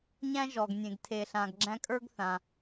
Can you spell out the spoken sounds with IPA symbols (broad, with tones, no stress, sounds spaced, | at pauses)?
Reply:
ɲ æ̃˥ ʒ ɔ˩ ɡ nʲ ẽ˩ ɡ tʰ e˩ ɬ ã˩ ɡ ɡ͡ǁ æ̃˧ kʼ ə˞˥ ɡ θ ã˩